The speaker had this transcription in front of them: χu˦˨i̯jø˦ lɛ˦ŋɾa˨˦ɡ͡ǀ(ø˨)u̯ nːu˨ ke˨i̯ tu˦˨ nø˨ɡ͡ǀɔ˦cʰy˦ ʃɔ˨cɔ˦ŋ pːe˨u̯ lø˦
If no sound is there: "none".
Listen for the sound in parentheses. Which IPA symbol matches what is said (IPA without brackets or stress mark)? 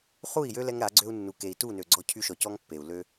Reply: ø˦